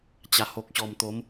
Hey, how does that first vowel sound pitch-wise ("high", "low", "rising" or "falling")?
low